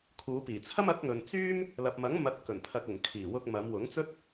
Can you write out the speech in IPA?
kʰ uː˨˧ p iː˨˩ t͡sʰ ɐ˥ m ɐ˨˥ k̚ ŋ ɵ˨ n t͡s yː˥ m | l ɐ˨ p̚ m ɐ˨˥ ŋ m ɐ˨˥ t̚ k ɵ˨˩ n pʰ ɐ˨ k̚ ʊ˨˩ ŋ kʰ iː˨˩ w ʊ˧ k̚ m ɐ˨˧ m w ʊ˨˥ ŋ t͡s ɵ˥ t̚

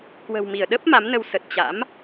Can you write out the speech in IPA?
k w ə̤˨˩ w m i˧˩ ə̯ ɗ ə˦˥ p̚ m a˨˦ m n ə˧ w s ə˨˩ t̚ t͡ɕ a̰˧˥ m

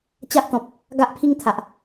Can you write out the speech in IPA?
t͡ɕ a˦ ʔ t̪ ɔ̃˨ p̚ | ɡ a˦ ʔ pʰ i˦ ŋ t̪ʰ a˨ ʔ

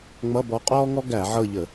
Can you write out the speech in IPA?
ŋ͡m ʌ˧˥˧ b ɔ˧˥ qʼ ɔː˥ ŋ ɔ˥ ɡ æ˧˩˧ ʕ ɤ˦˨ ʎ ə˧˩˧

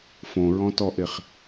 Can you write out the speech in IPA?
f õ ɹ ɔ̃ t ɔ ʔ e χ

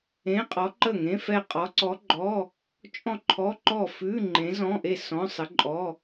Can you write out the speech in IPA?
ẽ˧˥˧ qʼ ɔ˧˥ ǃ ə˥˩ ŋ ẽ˧˥˧ f ɛ˥˩ qʼ ɔ˧˥ ǀ ɔ˧˥ ɡ͡ǃ ɔ˧˥˧ | t͡ʃʼ ɔ̃˥˩ ǃʰ ɔ˧˥˧ ǃ ɔ˥˩ f ʉ˧˥˧ ŋ͡ǃ ẽ˧˥ z ɔ̃˧˥˧ ʔ e˥˩ s ɔ̃˧˥˧ sˤ ə˧˥ ǃʼ ɔ˧˥˧

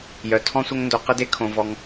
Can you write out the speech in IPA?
j œ˧ tʰ ɔ̃˦ sʷ ə˦ ŋ n d o˧ q ə˦ d e˦ kʰ õ˧ v ɔ˧ ŋ

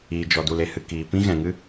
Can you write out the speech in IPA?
iː˨ d͡ʒ ɔ˨ d u˨ l e˨ h ɨ˨ k iː˨ p ĩ˦ ɣ ɛ̃˨ ŋ ɨ˦

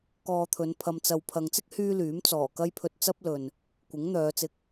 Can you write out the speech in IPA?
k ɔː˧ t̪ʰ ɵ˨˧ n pʰ ɐ˧ m t͡s ɐ˧ w pʰ ɐ˨ ŋ t͡s ɪ˥ k̚ h yː˥ l yː˨˥ m t͡s ɔː˨˩ k ɐ˥ j pʰ ɵ˧ t̚ t͡s ɐ˥ p̚ l ɵ˨ n | kʷ ɪ˨˥ ŋ n̪ œː˨˧ t͡s ɪ˧ k̚

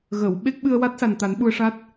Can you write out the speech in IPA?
ɣ ə˨˩˨ w ɓ e˦˥ k̚ ɓ ɨ˧ ə̯ w a˦˥ t̚ s a˨˩ n t̪ a˨˩˦ n ɓ u˧ ə̯ ʂ a˦˥ t̚

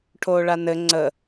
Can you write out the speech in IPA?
ʈʰ oː ɭ a n ɘ ŋ͡ǀ ə

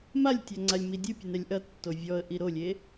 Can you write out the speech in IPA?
m a lʲ tʲ a ŋ͡ǀ a lʲ m i dʲ ɨ pʲ u n ɛ lʲ ʔ ɐ tː o vʲ ɔ ə̯ ʔ i ɾ o lʲ e

